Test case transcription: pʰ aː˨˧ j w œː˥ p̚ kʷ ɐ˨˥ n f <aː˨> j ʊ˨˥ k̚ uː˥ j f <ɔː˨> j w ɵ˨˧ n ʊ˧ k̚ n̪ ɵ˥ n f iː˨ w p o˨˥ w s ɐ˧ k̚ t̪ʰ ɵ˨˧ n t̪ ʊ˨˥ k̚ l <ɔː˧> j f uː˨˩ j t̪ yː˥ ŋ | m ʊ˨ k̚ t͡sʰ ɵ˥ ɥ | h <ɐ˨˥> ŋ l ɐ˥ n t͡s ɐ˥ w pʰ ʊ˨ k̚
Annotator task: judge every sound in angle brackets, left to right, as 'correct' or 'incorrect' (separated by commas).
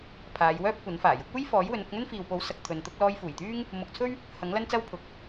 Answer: incorrect, incorrect, correct, correct